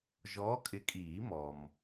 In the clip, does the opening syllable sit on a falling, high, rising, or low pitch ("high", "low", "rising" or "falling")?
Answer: rising